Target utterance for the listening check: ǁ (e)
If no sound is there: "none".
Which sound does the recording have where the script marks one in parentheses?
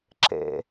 ḛ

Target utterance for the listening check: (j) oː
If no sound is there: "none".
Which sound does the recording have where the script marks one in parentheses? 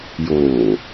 j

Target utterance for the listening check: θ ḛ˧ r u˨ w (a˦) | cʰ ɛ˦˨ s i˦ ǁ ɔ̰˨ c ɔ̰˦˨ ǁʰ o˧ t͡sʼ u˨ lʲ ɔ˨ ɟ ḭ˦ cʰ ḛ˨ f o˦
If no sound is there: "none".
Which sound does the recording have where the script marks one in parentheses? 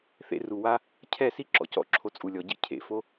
a˦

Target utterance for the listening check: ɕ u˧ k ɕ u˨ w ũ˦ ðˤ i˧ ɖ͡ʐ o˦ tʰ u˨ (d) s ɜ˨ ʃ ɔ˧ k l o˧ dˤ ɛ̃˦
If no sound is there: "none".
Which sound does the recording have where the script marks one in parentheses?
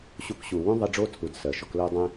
d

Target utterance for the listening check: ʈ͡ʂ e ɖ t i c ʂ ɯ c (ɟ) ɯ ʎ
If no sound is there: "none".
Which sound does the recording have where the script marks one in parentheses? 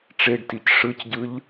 ɟ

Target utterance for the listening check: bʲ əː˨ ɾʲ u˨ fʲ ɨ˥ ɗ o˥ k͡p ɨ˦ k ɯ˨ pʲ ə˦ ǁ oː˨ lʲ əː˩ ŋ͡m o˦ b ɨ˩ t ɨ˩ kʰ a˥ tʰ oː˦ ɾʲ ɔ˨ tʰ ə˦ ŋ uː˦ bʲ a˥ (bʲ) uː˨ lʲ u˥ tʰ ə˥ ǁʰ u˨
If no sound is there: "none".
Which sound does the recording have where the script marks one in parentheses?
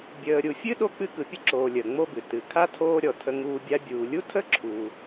bʲ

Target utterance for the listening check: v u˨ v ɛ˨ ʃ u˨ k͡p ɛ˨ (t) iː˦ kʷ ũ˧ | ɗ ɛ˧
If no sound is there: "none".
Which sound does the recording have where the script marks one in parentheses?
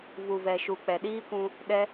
ɗ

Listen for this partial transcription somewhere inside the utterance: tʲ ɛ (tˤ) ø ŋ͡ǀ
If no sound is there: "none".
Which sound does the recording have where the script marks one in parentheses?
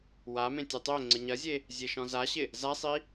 tˤ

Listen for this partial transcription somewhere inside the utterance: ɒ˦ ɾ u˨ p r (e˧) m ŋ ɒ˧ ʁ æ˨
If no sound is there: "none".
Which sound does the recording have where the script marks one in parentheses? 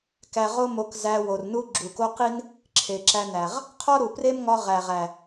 e˦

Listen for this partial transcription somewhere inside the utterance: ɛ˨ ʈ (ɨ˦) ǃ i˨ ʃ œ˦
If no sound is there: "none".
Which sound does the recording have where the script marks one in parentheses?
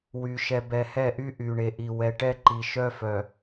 ɛ˦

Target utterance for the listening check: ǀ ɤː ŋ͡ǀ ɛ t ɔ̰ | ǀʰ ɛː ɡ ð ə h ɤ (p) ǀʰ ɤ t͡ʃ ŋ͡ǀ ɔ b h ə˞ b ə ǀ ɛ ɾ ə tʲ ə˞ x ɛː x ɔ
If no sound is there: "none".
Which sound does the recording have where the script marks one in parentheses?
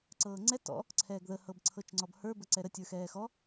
b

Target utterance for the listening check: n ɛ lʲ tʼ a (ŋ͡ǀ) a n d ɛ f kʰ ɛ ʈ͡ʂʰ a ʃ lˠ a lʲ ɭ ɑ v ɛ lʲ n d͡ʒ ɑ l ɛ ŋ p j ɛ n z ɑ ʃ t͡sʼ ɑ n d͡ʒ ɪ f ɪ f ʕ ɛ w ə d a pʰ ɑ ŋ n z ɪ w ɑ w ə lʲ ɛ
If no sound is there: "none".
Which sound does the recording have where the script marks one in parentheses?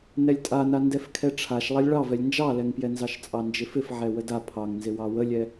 n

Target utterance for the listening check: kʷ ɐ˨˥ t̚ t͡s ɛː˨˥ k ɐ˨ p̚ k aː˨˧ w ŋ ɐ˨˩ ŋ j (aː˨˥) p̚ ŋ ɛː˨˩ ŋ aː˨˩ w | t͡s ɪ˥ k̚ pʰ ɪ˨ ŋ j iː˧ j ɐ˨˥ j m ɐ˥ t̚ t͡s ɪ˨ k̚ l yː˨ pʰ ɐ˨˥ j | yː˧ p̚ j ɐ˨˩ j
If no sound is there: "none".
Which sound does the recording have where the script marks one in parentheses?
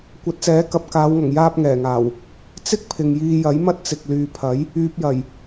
aː˧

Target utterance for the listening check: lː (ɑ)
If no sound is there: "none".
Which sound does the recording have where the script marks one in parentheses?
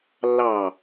ɑ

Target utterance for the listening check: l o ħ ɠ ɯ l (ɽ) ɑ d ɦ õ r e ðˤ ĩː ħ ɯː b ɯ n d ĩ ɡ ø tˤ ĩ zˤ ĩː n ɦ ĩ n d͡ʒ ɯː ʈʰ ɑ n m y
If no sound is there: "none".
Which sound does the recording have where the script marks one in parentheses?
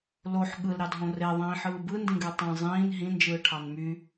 ɾ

